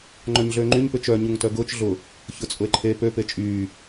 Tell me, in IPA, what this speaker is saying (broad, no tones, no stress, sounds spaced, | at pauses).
ŋ͡ǃ œ ɲ ɮ øː ŋ͡ǃ y ɲ p ʏ t͡ʃ œ ɲ u ŋ t œ ɡ ʊː t͡ʃ ɮ ʊ | ç ʊ t͡sʼ ʊ e̯ ǃʰ e p ø p e t͡ʃʼ yː